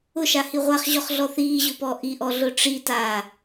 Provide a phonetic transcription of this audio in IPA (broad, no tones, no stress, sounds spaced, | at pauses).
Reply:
ʊ ʃ a h i ʁʷ a χ ʑ ɔ χ ɮ ɔ θ iː ʑ ʊː p ɔ ʔ i ʔ ɔ ɮ ʊ ʈ͡ʂ i t aː